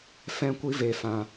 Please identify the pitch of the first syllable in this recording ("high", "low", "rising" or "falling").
high